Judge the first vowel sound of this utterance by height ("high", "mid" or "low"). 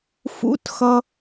high